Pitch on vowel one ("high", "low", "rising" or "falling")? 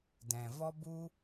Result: low